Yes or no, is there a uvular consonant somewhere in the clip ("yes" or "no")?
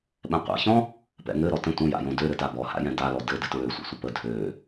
yes